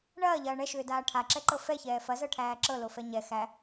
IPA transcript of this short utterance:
ɳɐːʎɐː ɳɛʃʏːdaː ʈʰaǁɛǃɤ fɛçɛː fɐzɤʈʰæː ǁɤlofɛ ɲɛ xæ

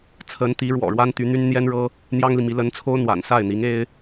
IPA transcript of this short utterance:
t͡sʰə˧˥nt̪i˧˥ɻwɔ̰˨˩ɻwa˥n t̪y˧˥n̪y˥n n̪jɛ˥nɻɤ˥ | n̪jɑ˥ŋli˨mi˧˥ lə˧˥nt͡sʰo˥ʊ̯ n̪wa̰˨˩n sa˥˩ɪ̯n̪i˧˥ŋ e˥ɪ̯

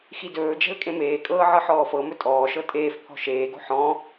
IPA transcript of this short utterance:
xidɵːd͡ʒɛ̤l kʼẽmeːkʼɤː ʕɤħɔːfɤmɵ tʼɔːʃɤ tʼeːfpʰɔ̤ ʃeːɡo̤ ħɔ̃

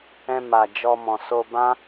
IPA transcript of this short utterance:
ɛ̃˧ ma˨d͡ʒɔ˧mɔ̃˨ so˧bã˦

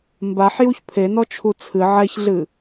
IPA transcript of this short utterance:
mbaħjuç pʰenɔt͡ʃʰu t͡sʰɨ ʕɛçɮɨ

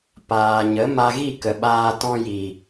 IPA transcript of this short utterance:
paː˨ ɲə˨˦ ma˧ɣi˦˨kə˨ɓaː˧ tɔ̃˧ji˨

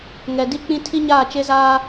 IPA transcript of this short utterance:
ŋɛ˨di˦ k͡pĩ˦ tʰi˦ɲaː˦˨t͡ʃe˦zaː˦

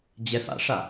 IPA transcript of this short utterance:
d͡ʑɛfa̰ʂa

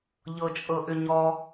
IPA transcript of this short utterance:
ʎɤt͡ʃʼɤʔʏɲɔ

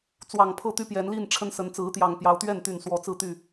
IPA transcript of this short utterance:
t͡swɑ˨˩ŋpʰɤ˥˨t̪y˦ pjɛ˨˦nli˥˨n ʈ͡ʂʰə˦nsə˨˦n t͡sɹ̩˨˦t̪jɑ˨˩ŋpjɑ˨˦ʊ̯t̪ɥɛ˥˨n t̪y˥˨nswɔ˥˨ t͡sɹ̩˥˨t̪y˥˨

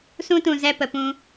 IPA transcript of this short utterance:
sũ˦tũ˨ zɛ˧pə˨pũ˧

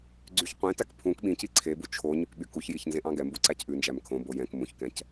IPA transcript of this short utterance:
ɡ͡ǀyçqʷẽtæk pʰũk ɓĩci ǀʰebu t͡ʃʰo ɲykɓykuçjiç nzẽʔɑ̃ɡɛmbu ǀæcʔʉnd͡ʒæm kʰõbo jɛ̃k mũçkɛ̃c

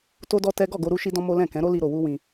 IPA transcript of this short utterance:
to˦dɔ˦tɛ˦ ɡɔ˦˨ɡo˧ ɾu˦ʃi˦dɔ̃˦ mo˦ lɛ̃˦˨kɛ̃˨˦ɾo˦ li˦ɾo˧wu˦wĩ˧

